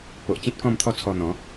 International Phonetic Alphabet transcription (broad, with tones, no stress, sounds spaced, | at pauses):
p o˨ ʔ t͡ɕ ĩ˦ t̚ k ɔ̃˥˧ m t̪ʰ ɔ˥˧ t͡sʰ ɔ˧ n̪ ɔ̃˨˦